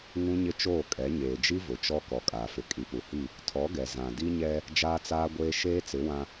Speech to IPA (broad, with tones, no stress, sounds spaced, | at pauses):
ŋ ũ˦ ɲ ɪ˦ t͡ʃ oː˦˨ kʼ ɛ˨˦ ɲ eː˨ d͡ʒ i˦ v ʊ˨ t͡ʃ ɔ˦ k ɔ˨ kʼ aː˨ f ɪ˨ kʼ i˨ p u˨ h i˦˨ | tʰ ɔ˨˦ ɡ ɛ˨ z ã˨ d i˦ ɲ ɛ˦ | d͡ʒ aː˦ t͡s aː˦ ɡʷ eː˦ ʃ eː˦ t͡s ɪ˨˦ w ã˦